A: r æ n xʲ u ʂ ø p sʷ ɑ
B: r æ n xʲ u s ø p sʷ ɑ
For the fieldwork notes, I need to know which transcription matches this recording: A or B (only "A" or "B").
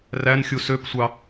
B